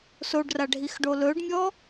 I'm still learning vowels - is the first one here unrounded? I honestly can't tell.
no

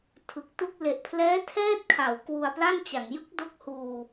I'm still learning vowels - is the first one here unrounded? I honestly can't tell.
yes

